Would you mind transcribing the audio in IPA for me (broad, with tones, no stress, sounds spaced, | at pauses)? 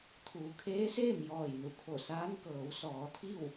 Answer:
t̪ʰ uː˩˧ kʰ eː˧˥ s eː˥˨ m j ɔː˧˩ j n u˩˧ kʰ o˧˩ s aː˧˥ n k ɤː˩˧ w s ɔː˩˧ t̪ʰ i˥˨ w